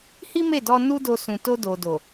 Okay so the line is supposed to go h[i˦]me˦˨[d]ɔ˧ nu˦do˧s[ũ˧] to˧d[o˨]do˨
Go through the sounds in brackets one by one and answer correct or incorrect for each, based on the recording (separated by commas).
correct, correct, incorrect, correct